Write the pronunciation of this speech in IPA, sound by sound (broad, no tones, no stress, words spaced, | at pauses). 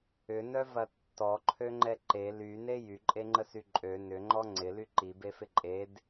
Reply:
ʏnœvɐ tːɔǃʰøŋ͡ǃɛ ǃe lyne jyǃʼeŋ͡ǃəsy ǃʼø nʏŋ͡ǃɔ ŋ͡ǀɪly ǃibefɪ ǃʼed